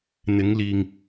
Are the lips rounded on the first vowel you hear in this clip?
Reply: no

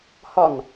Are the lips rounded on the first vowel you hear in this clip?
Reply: yes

